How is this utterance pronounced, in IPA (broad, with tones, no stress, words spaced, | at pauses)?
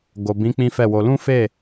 ɡo˨bĩ˨˦ k͡pĩ˦fɛ˦˨wo˧ lũ˦fe˦˨